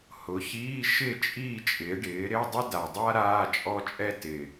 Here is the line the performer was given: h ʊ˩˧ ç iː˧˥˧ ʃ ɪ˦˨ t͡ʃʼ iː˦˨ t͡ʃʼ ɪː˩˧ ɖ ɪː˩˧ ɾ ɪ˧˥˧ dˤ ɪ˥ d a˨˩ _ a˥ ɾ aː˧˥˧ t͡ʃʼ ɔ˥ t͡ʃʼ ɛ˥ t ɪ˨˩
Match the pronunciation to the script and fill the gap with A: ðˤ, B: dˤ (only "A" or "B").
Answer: B